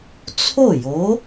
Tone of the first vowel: falling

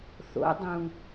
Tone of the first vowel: rising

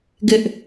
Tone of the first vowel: high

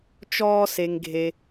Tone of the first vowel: high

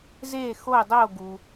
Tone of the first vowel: falling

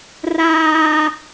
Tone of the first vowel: high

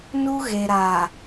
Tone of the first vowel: high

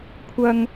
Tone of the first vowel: high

